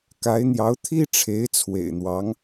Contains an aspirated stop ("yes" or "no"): yes